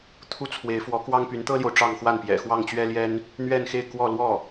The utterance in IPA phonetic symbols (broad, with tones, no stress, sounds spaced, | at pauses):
t̪ʰ u˥ t͡sʰ w e˧˥ ɪ̯ f w ɔ˧˥ k w ɑ˥ ŋ p y˧˥ n t̪ ɤ˥ l j o˨ ʊ̯ ʈ͡ʂ ɑ˥˧ ŋ x w a˥˩ n p j ɛ̰˨˩ x w ɑ˥˩ ŋ t͡ɕ ɥ ɛ˥ l j ɛ˥ n | n̪ ɥ ɛ˥˧ n x e˥˧ ɪ̯ k w ɔ˥˧ l w ɔ˥˩